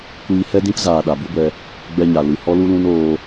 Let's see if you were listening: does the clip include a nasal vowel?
yes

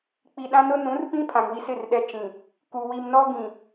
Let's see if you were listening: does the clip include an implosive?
yes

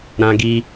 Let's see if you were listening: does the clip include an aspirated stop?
no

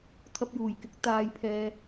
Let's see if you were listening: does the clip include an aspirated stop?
yes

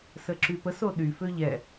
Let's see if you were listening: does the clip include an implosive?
yes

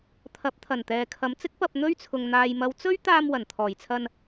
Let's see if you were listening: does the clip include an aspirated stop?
yes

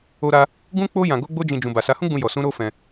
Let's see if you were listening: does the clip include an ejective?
no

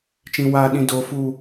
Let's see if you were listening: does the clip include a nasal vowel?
yes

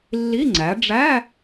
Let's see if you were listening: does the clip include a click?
yes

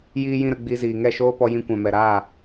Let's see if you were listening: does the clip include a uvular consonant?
no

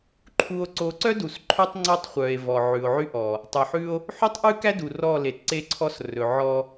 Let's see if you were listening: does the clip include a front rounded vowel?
yes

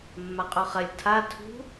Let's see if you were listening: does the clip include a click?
no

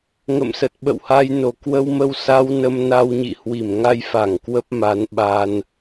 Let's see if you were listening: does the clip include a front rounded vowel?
no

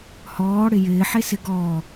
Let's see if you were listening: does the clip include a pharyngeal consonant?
yes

